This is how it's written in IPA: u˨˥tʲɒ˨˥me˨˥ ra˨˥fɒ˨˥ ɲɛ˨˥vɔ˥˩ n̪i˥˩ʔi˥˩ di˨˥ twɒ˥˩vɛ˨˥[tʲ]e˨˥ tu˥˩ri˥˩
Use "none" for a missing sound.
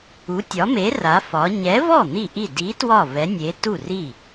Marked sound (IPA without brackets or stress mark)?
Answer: nʲ